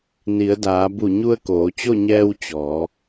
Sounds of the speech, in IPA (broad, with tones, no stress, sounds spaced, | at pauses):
n i˩˧ ə̯ d aː˩˧ b u˧˩ ɲ u˧ ə̯ k oː˩˧ t͡ɕ o˥˨ ɲ ɛː˧ w t͡ɕ ɔː˩˧